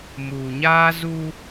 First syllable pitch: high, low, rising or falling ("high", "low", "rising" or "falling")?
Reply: low